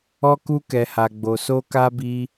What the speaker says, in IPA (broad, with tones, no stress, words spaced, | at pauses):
ɔ˧ku˧ kɛ˨ha˨ɡ͡bo˨ so˧ka˧bi˧